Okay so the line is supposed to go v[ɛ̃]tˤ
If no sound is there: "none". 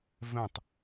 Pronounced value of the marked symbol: ɛ̃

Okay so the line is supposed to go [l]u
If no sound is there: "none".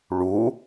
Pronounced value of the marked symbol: ɭ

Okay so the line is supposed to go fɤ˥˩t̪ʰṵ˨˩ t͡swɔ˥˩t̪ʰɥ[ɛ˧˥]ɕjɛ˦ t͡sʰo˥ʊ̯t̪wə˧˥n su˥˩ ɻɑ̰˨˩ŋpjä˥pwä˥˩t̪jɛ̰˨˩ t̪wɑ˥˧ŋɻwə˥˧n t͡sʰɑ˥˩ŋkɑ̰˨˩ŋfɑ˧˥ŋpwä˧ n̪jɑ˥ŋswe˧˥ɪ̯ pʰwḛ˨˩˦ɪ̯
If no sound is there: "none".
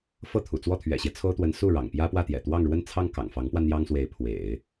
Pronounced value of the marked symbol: ɛ̰˨˩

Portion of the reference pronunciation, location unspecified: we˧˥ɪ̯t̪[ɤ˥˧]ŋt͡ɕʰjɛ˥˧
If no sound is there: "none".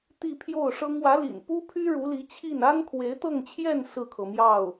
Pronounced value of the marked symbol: ɤ˥˧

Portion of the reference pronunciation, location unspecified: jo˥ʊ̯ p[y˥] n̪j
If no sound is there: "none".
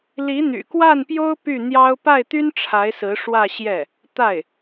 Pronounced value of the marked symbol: y˥˩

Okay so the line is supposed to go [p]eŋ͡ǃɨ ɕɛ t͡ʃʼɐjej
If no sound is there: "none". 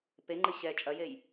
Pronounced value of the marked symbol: p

